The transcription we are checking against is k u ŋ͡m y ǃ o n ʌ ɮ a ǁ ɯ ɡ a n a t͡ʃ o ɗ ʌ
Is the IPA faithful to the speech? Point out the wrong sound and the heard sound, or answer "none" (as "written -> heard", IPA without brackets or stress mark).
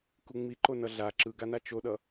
y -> i